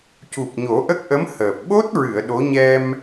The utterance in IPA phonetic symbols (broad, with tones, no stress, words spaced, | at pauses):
cu˨˩p̚ɲo˨˩˦ʔə˦˥k̚ʔə˧˥m həː˨˩p̚ ɓo˦˥t̚ɹɨ˨˩˨ə̯ ɗo˧˥ ɲɛ˧m